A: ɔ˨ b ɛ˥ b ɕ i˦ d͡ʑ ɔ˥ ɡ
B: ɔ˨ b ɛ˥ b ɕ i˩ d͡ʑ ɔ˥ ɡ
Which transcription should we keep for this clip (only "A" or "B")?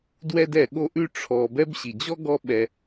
B